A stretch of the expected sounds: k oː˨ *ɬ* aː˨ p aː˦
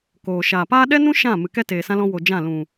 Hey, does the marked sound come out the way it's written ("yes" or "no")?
no